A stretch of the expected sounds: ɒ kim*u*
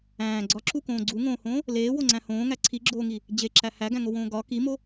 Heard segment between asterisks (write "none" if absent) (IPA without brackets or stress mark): o